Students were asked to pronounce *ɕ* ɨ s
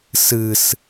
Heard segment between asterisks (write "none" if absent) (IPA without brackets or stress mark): s